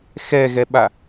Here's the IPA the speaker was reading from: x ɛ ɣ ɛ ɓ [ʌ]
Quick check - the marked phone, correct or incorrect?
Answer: incorrect